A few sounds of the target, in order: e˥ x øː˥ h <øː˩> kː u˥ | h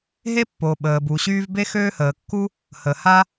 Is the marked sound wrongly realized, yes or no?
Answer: yes